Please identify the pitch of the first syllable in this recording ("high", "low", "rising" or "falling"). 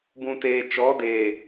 low